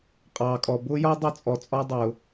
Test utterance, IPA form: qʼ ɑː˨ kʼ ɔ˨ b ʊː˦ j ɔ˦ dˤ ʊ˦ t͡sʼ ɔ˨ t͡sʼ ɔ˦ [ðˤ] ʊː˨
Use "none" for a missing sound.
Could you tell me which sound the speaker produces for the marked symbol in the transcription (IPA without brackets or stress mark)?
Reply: dˤ